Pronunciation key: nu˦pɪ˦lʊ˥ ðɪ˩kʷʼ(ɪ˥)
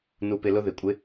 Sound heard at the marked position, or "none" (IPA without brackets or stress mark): ɪ˥